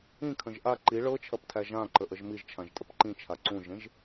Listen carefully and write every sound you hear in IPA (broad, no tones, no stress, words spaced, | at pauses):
ĩkʰə̃ʒ ʔa ǃi ɭɤt͡ʃʰɐptʰæ ʒãǃəʔəʒ miʒt͡ʃʰãʒtʼəp ǃĩt͡ʃʰa ǀũʒẽʒ